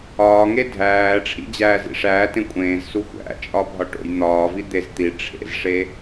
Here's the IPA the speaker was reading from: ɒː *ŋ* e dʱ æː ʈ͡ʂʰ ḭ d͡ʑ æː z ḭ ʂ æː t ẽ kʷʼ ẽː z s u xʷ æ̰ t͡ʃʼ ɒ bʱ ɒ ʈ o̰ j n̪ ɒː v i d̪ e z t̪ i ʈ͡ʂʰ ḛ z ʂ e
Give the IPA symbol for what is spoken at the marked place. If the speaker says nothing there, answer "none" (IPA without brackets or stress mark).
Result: ŋ